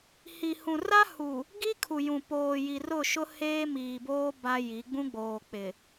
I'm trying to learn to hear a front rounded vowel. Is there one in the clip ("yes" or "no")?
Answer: no